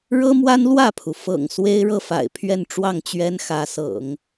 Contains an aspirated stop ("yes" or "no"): yes